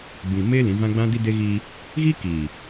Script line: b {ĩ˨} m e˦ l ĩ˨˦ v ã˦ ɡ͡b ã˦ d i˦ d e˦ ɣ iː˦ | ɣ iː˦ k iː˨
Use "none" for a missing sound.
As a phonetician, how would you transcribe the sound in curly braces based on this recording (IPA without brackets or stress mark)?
ĩ˨